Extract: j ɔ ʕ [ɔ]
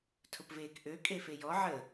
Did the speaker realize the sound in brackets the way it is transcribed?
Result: no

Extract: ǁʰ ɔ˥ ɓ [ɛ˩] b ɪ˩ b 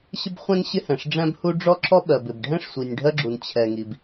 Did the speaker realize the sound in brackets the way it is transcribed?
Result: no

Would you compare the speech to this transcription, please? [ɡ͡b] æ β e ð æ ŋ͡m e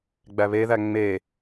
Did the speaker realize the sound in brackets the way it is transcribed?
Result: yes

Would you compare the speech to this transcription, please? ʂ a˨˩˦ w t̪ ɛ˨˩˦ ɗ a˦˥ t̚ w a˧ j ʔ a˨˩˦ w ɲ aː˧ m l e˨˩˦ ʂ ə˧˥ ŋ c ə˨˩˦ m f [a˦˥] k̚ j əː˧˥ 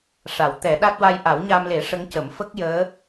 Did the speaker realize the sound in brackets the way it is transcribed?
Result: no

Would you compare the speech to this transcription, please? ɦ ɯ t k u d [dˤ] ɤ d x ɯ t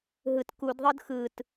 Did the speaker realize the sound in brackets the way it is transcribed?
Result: no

